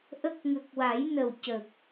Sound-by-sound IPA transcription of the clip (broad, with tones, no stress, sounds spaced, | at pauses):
ʔ ə˦˥ k̚ ŋ ə˨˩ k̚ w a˨˩˦ j n ə˨˩ w c ə˨˩ k̚